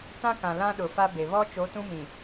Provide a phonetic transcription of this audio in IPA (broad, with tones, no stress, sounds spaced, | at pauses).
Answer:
t ã˦ k ã˨ l ã˦ ɗ ʊ˨ f a˦ b e˨ β ɔ˦ t͡ʃ o˨˦ t ũ˦ m ĩ˨